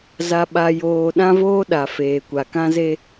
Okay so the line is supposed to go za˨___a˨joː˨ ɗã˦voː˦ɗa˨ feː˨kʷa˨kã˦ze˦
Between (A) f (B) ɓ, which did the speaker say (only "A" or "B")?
B